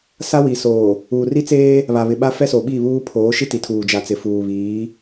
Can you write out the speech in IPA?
s a˦ w i˨ s oː˨ | uː˨ r i˦ t͡s eː˦ | β a˨ β ɪ˨ ɓ a˦ f ɛ˦ s o˨ ɓ i˦˨ β uː˦ pʰ oː˨˦ ʃ i˦ t i˨ tʰ uː˨ d͡ʒ a˨ t͡s ɪ˨ f uː˨ β iː˨˦

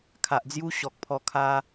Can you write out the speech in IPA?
kʰ a˨ ʔ d͡z j u˦ ɕ ɔ˨ k̚ pʰ ɔ˧ kʰ a˧

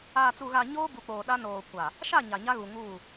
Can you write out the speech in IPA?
aː˨ t͡s u˨ ɣ a˨ ɲ oː˦ b u˨ k͡p oː˨ ɗ a˦ n oː˨ kʷ a˨ | ʃ a˦˨ ɲ a˨ ɲ a˦ ɣ u˨ ŋ uː˦˨

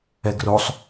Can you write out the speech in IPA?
ɛ ɡ r o sˤ

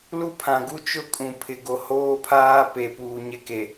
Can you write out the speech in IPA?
l u˦ pʰ ã˨ ɡ u˦ t͡ʃ ʊ˦ kʼ ũ˨ pʰ ɪ˨ ɡ o˨ h oː˦ pʰ aː˦ p e˨ p uː˨ ɲ ɪ˦ k e˨

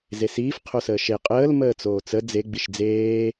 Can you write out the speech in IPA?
z e s iː f qʰ o s əː ʃ e qʼ əː l m əː t͡s oː t͡s ə d͡z e ɡ͡b i ʃ d͡z eː

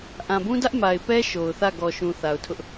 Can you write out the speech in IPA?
ʔ ã˨ b ũ˦ d ä˦ ʔ m a˨ ɪ̯ p ɛ˦ ʃ o˨ ʊ̯ θ ä˦˨ ɡ ɔ˨ ʃ ũ˨ θ a˨ ʊ̯ tʰ ʊ˦ ʔ

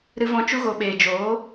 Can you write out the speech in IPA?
ɾ ɨ˧ v ɔ̃˧ t͡ʃ u˦ ɣ o˧ ɓ eː˨ d͡ʒ oː˨˦

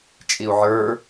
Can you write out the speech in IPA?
t͡ʃʼ i u̯ ʕ ə˞

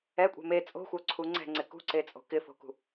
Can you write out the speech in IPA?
ɛ kʷʼ ɛ̤ m e t͡sʼ o̤ xʷ œ ǀʰ u ŋ͡ǀ ɛ̤ ŋ͡ǀ ɪ k ṳ ǀ e t͡sʼ o̤ k ɪ f o̤ k ṳ

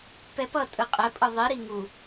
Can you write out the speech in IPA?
p ɛ p ʌ tʼ ɯ qʼ ɛ pʼ ɯ ðˤ i ɾ i ŋ u

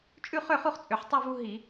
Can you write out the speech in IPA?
t͡ʃʼ ʉ˥˨ χ ø˥˨ χ u˥˨ χ t͡sʼ ø˨˩ ħ tˤ u˥˨ v u˦ ɦ i˧˩˧

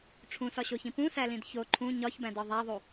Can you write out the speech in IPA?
ʈ͡ʂʰ ũ s ɒ ɕ o ç ĩ p ũ s æ l ĩ d ç o ǃʰ ũ ɲ ɒ ç b æ̃ d ɒ ðˤ æ ðˤ u

